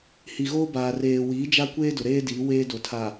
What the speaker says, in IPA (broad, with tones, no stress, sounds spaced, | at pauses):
h i˨ ɣ oː˦ b aː˨ r eː˨ w iː˨˦ d͡ʒ a˦ kʷ eː˦ d ʊ˨ ɾ eː˦ d iː˨˦ w eː˦ d o˨ tʰ a˨